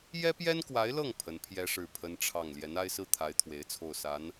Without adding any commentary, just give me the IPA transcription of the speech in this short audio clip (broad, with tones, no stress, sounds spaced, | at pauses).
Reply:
j ɛ˥ p j ɛ˥ n k w a˧˥ ɪ̯ l ɤ˥˩ ŋ pʰ ə˧˥ n pʰ j ɛ˥ ʂ ɻ̩˥˩ pʰ ə˥ n ʈ͡ʂʰ ɑ˥˩ ŋ l j ɛ˧˥ n a˥ ɪ̯ s ɹ̩˥ t̪ʰ a˧˥ ɪ̯ t̪ʰ w e˧˥ ɪ̯ t͡sʰ o˥˩ ʊ̯ s a˧˥ n